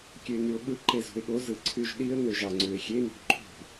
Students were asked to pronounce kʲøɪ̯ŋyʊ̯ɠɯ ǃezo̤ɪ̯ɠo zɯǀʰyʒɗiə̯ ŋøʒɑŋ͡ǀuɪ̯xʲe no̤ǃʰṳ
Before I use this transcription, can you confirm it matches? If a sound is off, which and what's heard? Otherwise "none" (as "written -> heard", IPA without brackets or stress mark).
none